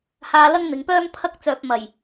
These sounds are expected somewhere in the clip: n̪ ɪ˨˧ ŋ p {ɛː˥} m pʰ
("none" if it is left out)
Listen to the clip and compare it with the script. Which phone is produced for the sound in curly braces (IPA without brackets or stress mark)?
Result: œː˥